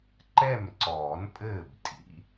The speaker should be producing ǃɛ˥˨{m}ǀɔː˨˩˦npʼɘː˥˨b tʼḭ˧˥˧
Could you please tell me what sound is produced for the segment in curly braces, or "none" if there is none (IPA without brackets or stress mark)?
m